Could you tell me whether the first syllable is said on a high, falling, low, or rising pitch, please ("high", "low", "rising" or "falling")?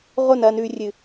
falling